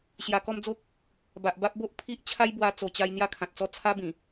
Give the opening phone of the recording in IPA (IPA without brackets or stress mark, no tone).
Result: ɕ